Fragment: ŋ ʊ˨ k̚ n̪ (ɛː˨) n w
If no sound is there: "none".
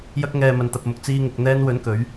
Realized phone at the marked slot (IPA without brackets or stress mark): ɛː˧